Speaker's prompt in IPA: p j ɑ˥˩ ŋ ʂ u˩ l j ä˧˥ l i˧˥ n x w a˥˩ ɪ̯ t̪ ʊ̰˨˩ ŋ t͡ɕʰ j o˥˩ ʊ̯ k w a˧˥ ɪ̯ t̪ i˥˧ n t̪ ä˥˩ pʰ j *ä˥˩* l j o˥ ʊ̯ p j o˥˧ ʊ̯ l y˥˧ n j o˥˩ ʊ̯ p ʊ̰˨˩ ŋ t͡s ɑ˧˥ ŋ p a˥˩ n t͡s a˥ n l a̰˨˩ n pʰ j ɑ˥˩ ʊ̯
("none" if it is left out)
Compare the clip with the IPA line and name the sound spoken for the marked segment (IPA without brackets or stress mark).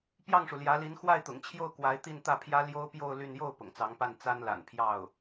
ä˥